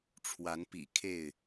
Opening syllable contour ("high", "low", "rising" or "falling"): rising